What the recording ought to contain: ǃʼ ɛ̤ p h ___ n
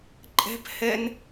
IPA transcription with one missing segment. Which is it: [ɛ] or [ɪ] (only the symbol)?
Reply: ɛ